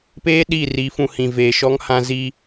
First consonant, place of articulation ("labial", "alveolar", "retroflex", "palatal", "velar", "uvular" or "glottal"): labial